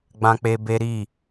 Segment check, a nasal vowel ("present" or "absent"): present